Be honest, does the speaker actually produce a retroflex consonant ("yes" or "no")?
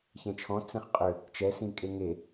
no